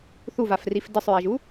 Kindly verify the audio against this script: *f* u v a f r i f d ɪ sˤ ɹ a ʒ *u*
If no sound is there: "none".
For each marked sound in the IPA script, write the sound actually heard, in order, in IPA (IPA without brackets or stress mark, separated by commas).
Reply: θ, u